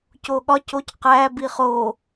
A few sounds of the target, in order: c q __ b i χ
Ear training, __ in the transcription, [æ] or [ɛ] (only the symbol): æ